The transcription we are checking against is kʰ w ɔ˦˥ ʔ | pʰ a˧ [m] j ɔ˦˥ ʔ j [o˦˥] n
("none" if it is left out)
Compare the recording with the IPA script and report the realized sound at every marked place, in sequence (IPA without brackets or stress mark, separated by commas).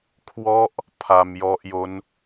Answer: m, o˦˥